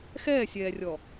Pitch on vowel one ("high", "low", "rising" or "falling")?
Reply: falling